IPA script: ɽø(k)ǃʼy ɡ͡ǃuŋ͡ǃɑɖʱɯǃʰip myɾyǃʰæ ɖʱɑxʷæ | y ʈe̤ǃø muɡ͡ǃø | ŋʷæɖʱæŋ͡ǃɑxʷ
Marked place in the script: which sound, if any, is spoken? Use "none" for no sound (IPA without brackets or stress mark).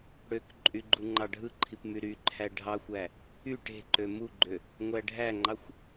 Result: k